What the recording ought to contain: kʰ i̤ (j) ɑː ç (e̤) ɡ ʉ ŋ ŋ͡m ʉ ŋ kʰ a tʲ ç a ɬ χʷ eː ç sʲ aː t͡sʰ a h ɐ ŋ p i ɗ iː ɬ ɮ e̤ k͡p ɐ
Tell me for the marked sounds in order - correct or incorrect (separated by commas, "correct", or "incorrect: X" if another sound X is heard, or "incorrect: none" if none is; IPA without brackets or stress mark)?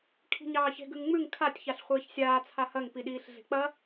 incorrect: ɲ, correct